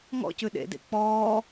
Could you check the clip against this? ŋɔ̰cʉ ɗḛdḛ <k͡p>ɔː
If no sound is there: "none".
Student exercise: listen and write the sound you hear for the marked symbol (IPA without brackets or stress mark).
k͡p